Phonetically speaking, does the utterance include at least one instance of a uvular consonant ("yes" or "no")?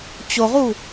yes